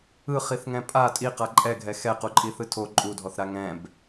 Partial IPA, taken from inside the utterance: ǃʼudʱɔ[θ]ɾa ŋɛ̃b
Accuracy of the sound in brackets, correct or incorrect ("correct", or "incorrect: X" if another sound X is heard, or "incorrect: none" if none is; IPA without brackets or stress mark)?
correct